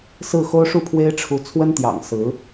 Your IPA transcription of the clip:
s ɹ̩˥˩ x o˥ ʊ̯ ʂ u˥˩ pʰ w e˥ ɪ̯ ʈ͡ʂʰ u˧˥ t͡sʰ w ə˥ n t̪ j ɑ̰˨˩ ŋ s ɹ̩˧˥

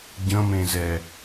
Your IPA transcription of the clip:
ɟ ə̃ m ẽ z ɛ

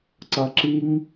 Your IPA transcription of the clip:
ǀ ʌ ǁ i ŋ

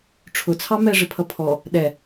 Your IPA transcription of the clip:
ʈ͡ʂʰ ʊ t͡sʰ ɑ m ɛ ʐ ɪ pʰ ʌ pʰ ɔ | ɗ ɛ

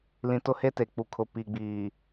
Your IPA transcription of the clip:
l ĩ˨ t ʊ˦ h e˦ t e˨ k͡p u˨ kʰ ʊ˨ p i˨ ɡ͡b iː˨

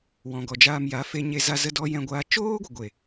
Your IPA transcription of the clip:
w ɔ̃˨ ɡ ɔ˨ d͡ʒ aː˧ m j a˨˦ f e˧ ɲ e˧ z a˧ z ə˦ d ɔ˦ j ɛ̃˧ ɡʷ aː˧ t͡ʃ oː˦ ɡʷ ə˨ ɡʷ e˨

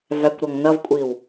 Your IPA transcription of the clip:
v æ kʷ ɾ ɔ ŋ n ʌ v kʷʼ i w

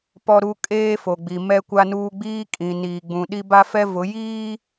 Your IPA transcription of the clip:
p ɔ˦ ɾ u˦ kʼ eː˦ f o˨ ɡ͡b i˨ m ɛ˦ kʷ a˦ n uː˦ ɡ͡b iː˦ kʼ ĩ˨ n iː˨ ɡ͡b ũ˨ ɗ i˦ b a˦ f ɛ˦ v ʊ˨˦ j iː˦

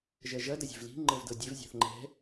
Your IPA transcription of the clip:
ʒ ɜ ʒ ɐ d ɐ zʲ e̤ v l i̤ ŋ͡ǃ ɤ v d ɤ dʲ e v zʲ a̤ θ ŋ͡ǃ ɛ̤

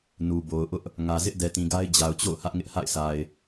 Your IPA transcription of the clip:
n u˨ b o˨ ʊ̯ ʔ ʊ˦ ʔ | ŋ ä˨ z ɪ˦ ʔ d ɛ˨ t ĩ˨ ɡ a˦ ɪ̯ d͡ʑ a˨ ʊ̯ t͡ɕ o̰˦˨ ʊ̯ h ä˦ ʔ ŋ ɪ˦ ʔ h a̰˦˨ ɪ̯ s a˨ ɪ̯

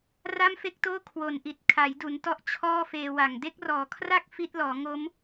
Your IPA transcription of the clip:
r a˥˩ m f e˥˩ k̚ t oː˥˩ kʰ w o˨˩ n ʔ i˨˩ t̚ kʰ a˩˦ j d u˩˦ n t ɔ˦˥ ʔ t͡ɕʰ ɔː˥˩ f eː˧ w a˨˩ ŋ d e˦˥ k̚ r ɔː˩˦ kʰ r a˥˩ k̚ f i˦˥ t̚ l ɔː˩˦ ŋ o˦˥ m

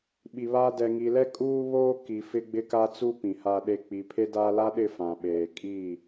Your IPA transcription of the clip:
ɓ i˨ β aː˦ d ɛ˨ ŋ i˨ l ɛ˦ kʼ uː˦ β oː˦ k i˨ f ɪ˦ ɡ͡b ɪ˦ k a˦ t͡s u˦ p ĩ˨ h a˦ ɗ e˦ k͡p i˨ pʰ e˦ d aː˦ l a˦ ɗ ɪ˦˨ f ã˨ ɓ eː˨ kʼ i˦˨

